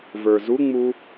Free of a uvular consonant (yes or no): yes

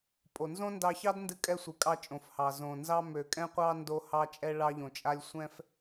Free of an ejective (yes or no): no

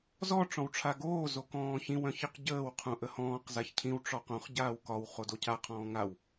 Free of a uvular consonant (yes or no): no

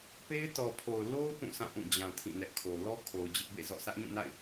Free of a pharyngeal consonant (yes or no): yes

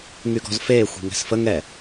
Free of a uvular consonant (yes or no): yes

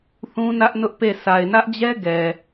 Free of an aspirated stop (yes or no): yes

